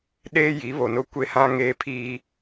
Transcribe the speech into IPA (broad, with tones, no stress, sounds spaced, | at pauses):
ɗ eː˦ j i˨˦ β o˨ n ʊ˦ kʷ e˦ h ã˦ ŋ eː˦ pʰ iː˦